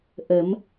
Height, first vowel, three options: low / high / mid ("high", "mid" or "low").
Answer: mid